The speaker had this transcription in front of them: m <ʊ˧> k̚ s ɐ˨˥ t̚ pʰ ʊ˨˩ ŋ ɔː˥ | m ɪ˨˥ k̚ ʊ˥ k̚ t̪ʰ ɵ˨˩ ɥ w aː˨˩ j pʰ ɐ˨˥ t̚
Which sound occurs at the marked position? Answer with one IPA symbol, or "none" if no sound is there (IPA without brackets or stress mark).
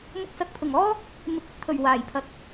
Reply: ʊ˧